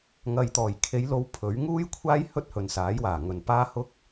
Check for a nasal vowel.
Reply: absent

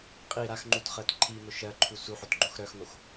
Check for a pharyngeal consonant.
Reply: present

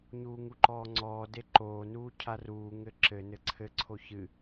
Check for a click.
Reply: present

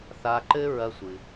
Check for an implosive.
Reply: absent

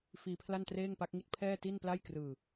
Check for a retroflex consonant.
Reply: absent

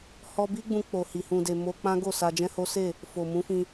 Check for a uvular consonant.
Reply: absent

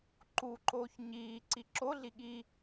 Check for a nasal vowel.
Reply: absent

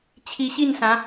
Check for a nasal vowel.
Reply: present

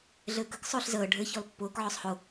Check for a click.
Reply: absent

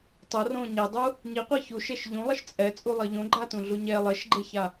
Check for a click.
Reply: present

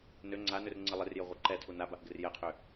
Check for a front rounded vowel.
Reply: present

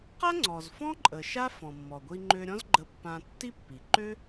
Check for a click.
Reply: present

